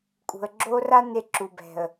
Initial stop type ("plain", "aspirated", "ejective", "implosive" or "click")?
ejective